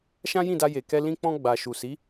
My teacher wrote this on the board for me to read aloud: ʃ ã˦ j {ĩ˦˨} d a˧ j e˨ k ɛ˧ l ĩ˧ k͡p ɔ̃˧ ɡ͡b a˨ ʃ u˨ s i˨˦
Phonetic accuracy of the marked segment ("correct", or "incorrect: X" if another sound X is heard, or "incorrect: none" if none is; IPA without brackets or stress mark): correct